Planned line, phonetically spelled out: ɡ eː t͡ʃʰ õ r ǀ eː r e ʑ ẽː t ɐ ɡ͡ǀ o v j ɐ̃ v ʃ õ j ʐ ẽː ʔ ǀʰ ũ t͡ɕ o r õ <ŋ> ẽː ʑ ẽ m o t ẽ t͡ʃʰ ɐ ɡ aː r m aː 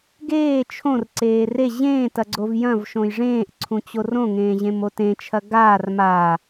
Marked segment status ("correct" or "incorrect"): correct